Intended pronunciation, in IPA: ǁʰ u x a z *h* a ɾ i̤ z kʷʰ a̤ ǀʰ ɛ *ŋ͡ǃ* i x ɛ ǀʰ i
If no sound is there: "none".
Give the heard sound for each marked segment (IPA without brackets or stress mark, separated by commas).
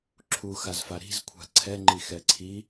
f, ŋ͡ǃ